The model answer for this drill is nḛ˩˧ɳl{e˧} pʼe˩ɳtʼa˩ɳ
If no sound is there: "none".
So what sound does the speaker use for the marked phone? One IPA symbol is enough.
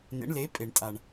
e˩˧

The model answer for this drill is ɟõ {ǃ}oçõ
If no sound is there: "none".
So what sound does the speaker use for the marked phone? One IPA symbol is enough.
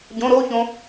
ɾ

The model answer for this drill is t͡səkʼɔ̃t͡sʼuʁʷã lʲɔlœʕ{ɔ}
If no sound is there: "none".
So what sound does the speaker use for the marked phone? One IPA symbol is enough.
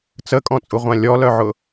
ʊ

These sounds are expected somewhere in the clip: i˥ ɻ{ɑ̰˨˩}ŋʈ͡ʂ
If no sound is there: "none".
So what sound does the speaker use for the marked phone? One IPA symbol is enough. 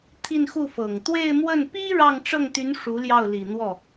ɑ˥˧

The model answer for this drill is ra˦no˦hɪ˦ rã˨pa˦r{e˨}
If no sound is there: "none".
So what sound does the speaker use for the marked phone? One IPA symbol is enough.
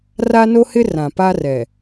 ɛ˨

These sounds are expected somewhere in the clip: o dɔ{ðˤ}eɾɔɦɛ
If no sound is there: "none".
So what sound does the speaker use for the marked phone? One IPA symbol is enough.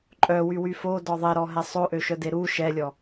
ðˤ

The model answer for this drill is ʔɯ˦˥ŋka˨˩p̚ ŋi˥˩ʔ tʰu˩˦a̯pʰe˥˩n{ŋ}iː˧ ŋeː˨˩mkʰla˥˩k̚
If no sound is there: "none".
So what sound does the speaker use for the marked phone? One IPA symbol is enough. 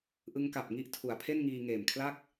ŋ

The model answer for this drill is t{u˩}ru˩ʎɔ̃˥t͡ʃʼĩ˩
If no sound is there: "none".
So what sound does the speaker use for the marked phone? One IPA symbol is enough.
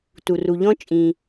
u˩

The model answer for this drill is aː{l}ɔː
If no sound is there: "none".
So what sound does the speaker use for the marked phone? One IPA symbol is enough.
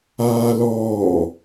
l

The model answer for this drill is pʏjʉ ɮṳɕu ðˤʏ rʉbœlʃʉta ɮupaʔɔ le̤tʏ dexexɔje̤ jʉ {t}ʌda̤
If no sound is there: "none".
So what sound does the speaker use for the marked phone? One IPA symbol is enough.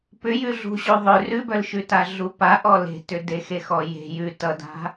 t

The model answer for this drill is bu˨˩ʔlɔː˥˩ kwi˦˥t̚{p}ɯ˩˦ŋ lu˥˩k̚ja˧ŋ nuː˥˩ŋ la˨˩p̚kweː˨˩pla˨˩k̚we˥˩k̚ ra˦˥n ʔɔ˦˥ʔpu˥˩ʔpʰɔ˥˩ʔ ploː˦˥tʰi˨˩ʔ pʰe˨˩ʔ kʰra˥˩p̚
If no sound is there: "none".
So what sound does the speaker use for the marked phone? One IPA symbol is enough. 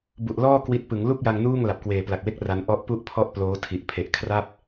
p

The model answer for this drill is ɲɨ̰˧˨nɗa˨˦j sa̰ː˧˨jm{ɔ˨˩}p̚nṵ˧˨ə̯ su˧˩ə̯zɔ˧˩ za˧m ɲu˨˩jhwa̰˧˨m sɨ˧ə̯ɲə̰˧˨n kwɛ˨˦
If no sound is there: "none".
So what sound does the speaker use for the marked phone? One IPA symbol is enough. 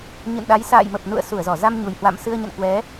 ə˨˩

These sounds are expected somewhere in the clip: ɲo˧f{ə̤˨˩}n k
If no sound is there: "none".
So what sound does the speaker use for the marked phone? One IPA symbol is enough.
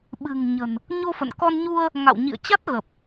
ə̰˧˨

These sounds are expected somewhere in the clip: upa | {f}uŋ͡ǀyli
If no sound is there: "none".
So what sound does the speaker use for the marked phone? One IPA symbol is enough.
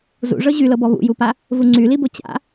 v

